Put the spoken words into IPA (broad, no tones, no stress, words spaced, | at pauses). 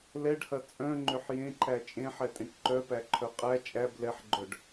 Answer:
lɛɖhɐ t͡sʼœ̃ŋ͡ǃʏħ jẽǃæ t͡ʃʼẽħɛtʼẽʈ ǃœpæǃʰœ qʼæ t͡ʃʼæb lɛħɡ͡ǃœɖ